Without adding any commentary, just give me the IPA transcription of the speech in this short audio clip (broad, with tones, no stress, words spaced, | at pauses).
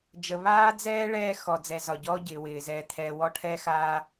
d͡ʒə˨βaː˦d͡zɛː˦ ɭɛː˦ xɔ˨d͡zɛ˨zɒ˨ɟɔː˦ ɟɪː˨wɪː˨ zɛː˨t̪ʰɛː˨ wɔ˦ʈʰɛː˦xaː˦